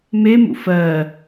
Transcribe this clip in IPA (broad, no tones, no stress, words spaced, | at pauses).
memṵ fɜ